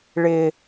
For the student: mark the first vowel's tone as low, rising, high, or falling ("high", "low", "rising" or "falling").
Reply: low